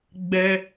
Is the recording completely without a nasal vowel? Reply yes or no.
yes